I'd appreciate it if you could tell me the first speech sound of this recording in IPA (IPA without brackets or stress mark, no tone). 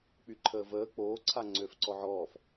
k͡p